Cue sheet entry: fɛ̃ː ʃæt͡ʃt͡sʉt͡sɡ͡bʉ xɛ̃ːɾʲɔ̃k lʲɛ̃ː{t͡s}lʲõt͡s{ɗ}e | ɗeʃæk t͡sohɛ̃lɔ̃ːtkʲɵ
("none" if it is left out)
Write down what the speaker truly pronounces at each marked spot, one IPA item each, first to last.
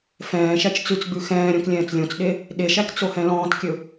t͡s, ɗ

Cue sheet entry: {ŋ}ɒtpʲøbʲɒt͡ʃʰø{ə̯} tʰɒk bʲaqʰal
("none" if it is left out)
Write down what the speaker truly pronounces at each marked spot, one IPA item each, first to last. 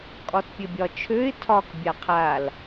kʼ, ɪ̯

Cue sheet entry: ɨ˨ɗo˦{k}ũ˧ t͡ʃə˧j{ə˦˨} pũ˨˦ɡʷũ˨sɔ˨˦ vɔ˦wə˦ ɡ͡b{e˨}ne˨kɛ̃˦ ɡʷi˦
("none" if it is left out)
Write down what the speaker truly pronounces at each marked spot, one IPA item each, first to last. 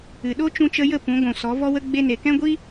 t͡ʃ, ə˦˨, e˧

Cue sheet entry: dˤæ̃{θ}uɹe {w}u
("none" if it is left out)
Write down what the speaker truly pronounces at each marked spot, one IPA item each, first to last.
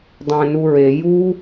n, j

